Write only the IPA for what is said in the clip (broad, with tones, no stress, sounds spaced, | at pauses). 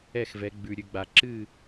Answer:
ɛ˥˨ x v ɛ˨˦ ɡ͡b ʉ˨ ɾʲ ʉ˨ ɡ͡b a˨ ǁ ɨ˥˨